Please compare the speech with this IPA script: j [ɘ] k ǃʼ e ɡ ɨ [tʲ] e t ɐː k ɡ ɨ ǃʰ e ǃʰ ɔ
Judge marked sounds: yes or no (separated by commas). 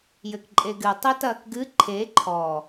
yes, no